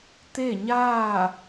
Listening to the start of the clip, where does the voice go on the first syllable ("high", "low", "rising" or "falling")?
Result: falling